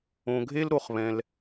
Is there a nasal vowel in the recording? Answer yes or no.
yes